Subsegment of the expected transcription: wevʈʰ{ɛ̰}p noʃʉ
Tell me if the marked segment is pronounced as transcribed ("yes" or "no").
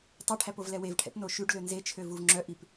yes